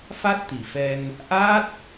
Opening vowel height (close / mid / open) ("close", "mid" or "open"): open